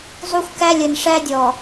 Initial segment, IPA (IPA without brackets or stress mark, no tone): zˤ